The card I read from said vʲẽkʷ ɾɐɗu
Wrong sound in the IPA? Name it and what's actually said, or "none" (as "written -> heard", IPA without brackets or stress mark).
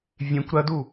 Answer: ɗ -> d